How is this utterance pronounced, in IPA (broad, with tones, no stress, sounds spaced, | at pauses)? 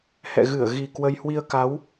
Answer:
h ɛ̰˧˨ ɣ ɨ˧˩ ə̯ ɣ i˨˩ k w ə˧ j h w i˧ ə̯ k a˨˦ w